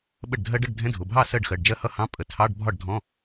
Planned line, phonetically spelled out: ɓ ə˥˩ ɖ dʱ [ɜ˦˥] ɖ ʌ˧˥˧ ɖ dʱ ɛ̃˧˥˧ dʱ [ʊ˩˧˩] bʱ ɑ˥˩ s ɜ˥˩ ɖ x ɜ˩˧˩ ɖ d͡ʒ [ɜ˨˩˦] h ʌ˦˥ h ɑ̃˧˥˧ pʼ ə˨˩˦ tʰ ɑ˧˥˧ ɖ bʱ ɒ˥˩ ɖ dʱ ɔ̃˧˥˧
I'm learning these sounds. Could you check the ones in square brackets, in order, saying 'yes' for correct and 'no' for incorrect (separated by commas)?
yes, yes, no